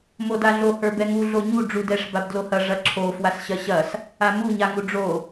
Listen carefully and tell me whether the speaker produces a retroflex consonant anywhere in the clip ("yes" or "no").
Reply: yes